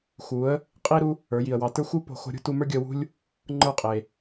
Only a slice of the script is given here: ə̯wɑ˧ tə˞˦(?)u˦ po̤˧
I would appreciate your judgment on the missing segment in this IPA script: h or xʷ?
xʷ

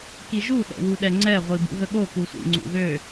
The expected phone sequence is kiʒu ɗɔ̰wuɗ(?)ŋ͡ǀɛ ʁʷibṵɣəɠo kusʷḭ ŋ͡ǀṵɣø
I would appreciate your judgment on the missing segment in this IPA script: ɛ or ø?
ɛ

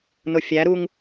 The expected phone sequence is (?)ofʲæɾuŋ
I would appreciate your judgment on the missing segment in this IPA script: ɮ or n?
n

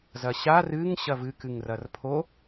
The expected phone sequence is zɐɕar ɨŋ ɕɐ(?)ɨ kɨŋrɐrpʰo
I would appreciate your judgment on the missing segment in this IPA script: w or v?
v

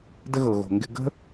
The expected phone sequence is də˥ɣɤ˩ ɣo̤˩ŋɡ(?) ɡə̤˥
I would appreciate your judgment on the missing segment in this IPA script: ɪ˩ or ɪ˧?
ɪ˧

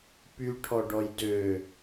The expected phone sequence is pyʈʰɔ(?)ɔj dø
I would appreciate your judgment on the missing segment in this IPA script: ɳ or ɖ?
ɖ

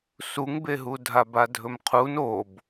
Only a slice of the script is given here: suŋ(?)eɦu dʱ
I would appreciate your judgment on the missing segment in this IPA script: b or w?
b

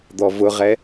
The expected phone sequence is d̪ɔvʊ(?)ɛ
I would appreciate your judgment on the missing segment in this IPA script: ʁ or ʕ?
ʁ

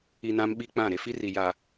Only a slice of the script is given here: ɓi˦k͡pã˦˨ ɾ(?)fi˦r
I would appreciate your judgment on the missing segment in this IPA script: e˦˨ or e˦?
e˦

